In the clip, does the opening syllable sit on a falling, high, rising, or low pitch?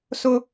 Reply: high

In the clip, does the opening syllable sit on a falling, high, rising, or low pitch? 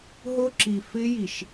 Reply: high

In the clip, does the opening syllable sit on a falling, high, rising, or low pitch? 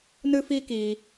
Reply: high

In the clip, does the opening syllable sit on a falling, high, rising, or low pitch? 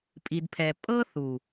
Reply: low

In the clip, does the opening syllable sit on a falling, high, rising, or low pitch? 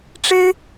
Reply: high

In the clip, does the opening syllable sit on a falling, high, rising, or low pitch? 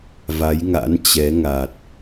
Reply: rising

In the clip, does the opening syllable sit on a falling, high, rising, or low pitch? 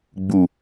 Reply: low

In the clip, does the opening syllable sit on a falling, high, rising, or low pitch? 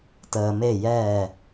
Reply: low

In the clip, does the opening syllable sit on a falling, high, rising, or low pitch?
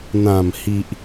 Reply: low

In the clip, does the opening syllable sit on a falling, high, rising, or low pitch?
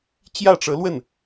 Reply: falling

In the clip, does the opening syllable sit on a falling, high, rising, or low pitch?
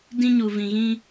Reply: high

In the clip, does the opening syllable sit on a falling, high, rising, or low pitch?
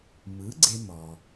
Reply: rising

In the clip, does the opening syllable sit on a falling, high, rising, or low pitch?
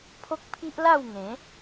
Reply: high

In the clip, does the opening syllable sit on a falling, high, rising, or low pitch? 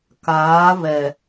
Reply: rising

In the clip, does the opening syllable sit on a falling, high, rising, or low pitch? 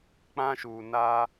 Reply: high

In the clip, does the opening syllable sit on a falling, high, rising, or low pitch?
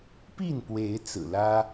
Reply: falling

